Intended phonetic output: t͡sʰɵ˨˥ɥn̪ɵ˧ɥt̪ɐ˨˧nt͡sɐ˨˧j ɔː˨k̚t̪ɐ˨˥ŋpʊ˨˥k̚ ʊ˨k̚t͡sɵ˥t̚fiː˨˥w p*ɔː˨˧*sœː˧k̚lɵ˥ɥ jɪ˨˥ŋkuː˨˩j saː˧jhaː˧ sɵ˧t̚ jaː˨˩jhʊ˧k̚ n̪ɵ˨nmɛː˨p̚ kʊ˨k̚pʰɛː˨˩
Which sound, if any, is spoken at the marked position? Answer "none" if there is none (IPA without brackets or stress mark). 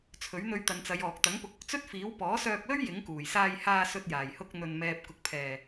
ɔː˨˥